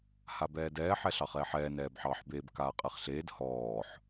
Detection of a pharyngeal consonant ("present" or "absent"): present